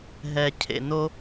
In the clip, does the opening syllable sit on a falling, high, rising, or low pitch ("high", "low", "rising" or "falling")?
low